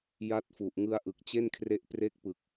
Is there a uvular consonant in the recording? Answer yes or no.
no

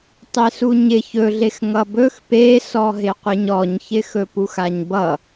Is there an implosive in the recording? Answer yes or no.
no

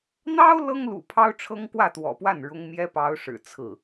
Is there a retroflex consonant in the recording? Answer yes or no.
yes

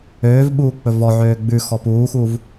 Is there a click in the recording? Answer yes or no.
no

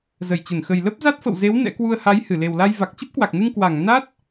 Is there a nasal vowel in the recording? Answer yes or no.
no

